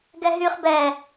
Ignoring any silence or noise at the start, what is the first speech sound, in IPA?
ɡ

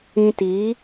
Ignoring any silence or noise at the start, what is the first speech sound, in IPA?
ĩ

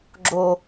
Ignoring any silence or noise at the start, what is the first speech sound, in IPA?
ɡ͡ǁ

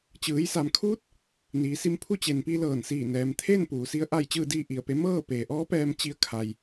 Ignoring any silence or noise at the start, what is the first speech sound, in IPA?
t͡ɕ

